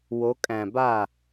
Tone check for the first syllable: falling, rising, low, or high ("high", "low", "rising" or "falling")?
rising